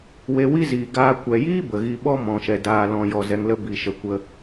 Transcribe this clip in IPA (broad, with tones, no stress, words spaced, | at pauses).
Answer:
we˧ wi˦ziː˨ ɡaː˧ kʷɛ˨jiː˦ bə˨ɣi˧ ɓɔ˦ mɔ̃˨ʃɛ˨ daː˨lɔ̃˨jɔ˨ zɛ˧ŋlə˦ bi˨ʃə˨kʷə˧